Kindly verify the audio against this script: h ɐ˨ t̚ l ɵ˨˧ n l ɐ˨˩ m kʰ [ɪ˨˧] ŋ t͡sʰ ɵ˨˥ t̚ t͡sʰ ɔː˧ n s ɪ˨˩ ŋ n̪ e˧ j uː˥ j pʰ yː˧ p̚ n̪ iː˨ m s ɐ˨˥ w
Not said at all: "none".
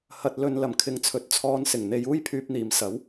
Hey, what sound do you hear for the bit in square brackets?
ɪ˨˧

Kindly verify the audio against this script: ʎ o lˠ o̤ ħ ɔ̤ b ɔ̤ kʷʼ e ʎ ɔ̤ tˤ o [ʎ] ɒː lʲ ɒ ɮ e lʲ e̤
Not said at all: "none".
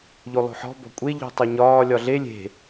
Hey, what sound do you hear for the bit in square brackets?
ɲ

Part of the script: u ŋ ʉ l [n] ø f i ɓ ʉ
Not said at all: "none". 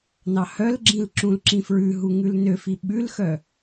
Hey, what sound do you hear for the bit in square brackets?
n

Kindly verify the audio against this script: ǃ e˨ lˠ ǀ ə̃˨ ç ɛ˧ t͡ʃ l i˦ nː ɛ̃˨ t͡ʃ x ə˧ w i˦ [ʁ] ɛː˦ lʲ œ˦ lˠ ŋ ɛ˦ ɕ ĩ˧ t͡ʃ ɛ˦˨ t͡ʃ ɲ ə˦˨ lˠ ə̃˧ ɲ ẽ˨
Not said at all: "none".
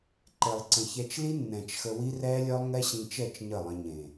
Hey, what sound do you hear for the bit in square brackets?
r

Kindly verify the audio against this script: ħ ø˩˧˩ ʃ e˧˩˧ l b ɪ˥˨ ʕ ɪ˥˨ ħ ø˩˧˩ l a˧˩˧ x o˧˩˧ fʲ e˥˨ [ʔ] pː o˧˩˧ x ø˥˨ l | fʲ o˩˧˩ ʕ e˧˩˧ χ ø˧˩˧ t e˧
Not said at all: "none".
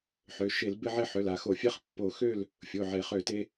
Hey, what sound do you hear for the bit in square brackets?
χ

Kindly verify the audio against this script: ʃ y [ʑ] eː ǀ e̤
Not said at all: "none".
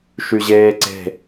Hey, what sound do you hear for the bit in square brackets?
ʑ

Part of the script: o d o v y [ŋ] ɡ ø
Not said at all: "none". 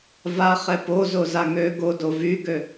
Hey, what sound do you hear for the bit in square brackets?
none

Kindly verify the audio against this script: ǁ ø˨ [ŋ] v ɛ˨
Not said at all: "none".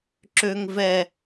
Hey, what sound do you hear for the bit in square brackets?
ŋ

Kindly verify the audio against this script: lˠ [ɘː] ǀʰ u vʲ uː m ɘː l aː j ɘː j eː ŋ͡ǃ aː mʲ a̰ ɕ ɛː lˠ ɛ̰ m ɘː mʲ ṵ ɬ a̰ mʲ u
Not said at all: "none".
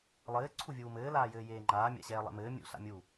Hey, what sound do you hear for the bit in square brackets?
ɘː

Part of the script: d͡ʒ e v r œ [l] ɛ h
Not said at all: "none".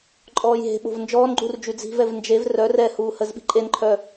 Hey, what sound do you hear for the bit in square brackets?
r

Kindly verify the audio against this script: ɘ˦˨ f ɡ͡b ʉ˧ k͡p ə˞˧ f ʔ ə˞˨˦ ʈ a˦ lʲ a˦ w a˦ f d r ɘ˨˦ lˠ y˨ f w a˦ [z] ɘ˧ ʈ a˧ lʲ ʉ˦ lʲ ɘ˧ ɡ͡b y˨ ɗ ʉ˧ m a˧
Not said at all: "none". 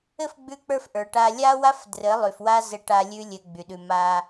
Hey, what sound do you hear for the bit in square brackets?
z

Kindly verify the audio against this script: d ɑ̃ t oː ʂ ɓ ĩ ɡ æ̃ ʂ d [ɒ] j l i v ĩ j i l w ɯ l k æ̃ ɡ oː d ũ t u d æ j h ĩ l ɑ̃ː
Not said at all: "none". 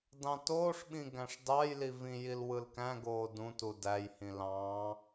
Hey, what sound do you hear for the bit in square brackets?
ɑ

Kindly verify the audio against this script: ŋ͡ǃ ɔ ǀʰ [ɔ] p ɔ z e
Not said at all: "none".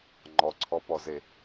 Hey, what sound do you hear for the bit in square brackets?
ɔ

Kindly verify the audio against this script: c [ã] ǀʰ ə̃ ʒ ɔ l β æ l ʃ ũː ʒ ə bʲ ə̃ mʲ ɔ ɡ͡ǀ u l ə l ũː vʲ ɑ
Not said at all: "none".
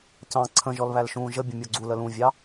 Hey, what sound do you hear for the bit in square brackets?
ɑ̃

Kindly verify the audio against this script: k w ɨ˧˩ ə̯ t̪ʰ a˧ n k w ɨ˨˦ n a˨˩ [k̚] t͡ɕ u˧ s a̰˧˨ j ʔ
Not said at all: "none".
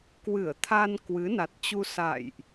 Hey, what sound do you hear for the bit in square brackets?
t̚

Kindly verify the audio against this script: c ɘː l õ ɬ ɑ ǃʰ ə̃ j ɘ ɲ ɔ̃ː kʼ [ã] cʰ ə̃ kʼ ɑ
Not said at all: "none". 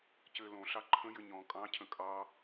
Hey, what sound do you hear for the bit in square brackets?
ɑ̃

